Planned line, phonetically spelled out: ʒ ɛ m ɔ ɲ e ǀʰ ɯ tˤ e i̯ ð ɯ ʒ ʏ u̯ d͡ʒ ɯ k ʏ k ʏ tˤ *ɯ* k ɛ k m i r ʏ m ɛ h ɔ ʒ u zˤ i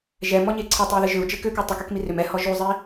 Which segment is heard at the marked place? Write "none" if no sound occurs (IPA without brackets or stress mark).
u